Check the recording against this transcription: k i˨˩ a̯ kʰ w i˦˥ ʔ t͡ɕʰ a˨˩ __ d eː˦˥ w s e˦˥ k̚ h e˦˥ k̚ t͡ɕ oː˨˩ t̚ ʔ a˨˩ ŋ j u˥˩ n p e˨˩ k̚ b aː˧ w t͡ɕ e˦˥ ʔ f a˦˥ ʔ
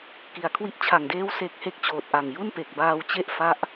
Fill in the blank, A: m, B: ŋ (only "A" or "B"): B